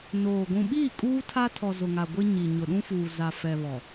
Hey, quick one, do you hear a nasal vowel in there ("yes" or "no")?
yes